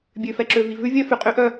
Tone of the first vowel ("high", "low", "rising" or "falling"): low